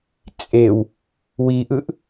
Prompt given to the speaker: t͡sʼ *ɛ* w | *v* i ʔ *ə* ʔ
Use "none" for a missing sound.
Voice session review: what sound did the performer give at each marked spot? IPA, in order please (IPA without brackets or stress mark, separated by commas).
e, w, ɯ